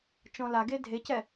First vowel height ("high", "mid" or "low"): mid